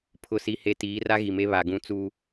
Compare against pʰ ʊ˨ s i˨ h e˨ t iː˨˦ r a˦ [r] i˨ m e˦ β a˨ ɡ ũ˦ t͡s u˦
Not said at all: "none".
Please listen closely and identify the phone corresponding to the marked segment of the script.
ɣ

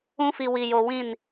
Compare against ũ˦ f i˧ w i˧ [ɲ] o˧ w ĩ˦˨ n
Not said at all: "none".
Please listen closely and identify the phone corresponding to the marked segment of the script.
j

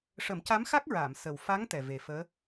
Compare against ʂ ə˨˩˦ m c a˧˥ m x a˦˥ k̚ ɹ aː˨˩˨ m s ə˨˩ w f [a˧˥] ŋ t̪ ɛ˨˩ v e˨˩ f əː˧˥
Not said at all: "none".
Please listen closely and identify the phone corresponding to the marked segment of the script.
a˧˥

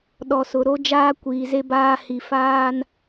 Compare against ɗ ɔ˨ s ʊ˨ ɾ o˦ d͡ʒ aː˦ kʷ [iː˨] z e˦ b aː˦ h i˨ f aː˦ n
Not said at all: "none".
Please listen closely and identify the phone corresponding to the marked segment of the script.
iː˨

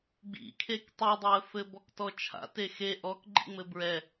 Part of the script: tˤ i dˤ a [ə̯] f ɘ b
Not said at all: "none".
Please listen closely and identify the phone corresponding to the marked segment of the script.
ə̯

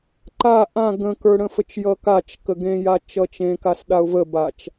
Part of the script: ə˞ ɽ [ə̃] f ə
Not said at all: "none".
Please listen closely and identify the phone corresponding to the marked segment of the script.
ə̃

